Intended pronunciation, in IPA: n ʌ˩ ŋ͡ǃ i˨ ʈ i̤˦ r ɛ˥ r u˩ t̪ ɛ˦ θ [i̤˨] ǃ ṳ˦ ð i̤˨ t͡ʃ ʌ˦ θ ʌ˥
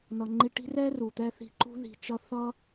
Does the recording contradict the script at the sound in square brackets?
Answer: no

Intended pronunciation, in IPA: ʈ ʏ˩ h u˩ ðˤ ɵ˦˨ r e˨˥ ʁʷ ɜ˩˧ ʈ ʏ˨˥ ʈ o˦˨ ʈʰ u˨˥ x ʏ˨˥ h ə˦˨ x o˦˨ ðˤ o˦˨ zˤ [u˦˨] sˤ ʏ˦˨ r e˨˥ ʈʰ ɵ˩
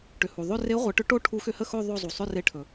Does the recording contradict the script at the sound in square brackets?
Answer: yes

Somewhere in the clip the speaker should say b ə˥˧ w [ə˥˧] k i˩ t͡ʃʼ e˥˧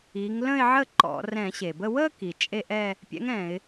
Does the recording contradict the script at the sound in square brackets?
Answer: no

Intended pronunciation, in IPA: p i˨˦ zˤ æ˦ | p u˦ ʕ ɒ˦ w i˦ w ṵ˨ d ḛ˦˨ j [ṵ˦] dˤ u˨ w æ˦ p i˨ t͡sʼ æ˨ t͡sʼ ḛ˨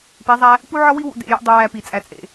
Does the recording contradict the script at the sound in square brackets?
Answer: no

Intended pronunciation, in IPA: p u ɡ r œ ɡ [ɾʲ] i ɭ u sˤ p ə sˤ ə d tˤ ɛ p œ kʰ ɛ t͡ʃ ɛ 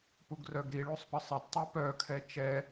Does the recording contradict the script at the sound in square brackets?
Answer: yes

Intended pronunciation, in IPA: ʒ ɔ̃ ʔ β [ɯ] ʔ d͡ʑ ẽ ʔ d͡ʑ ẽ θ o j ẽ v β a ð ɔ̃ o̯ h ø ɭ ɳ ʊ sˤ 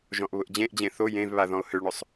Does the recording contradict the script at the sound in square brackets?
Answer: yes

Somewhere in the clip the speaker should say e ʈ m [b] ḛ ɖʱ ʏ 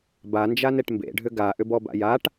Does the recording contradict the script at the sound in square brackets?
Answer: no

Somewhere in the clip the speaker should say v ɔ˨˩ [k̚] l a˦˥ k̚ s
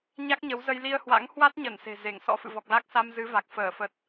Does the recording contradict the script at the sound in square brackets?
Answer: no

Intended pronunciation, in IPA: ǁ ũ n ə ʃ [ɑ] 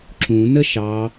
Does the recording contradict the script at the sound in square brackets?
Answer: no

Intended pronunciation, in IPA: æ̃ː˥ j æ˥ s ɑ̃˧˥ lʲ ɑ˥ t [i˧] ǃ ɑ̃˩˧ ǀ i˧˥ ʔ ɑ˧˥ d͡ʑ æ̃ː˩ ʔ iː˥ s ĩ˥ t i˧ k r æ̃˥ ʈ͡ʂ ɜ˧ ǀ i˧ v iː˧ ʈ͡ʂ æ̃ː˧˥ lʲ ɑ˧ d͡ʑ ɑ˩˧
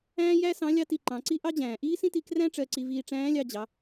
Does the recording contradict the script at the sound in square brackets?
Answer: no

